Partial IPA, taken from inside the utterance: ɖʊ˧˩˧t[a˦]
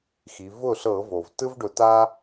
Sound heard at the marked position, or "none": a˦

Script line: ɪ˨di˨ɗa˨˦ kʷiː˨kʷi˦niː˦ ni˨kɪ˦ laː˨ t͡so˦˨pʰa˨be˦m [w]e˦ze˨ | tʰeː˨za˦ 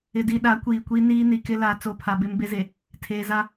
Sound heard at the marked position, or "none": b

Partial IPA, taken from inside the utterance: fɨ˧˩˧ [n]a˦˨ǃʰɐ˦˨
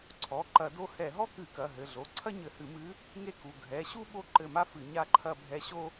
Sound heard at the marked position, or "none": ɲ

